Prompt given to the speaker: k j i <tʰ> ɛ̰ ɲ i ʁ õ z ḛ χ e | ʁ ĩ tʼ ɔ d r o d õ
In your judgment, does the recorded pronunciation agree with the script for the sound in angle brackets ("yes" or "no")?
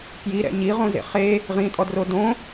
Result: no